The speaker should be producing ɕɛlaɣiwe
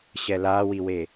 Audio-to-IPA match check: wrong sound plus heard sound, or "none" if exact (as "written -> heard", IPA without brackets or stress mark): ɣ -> w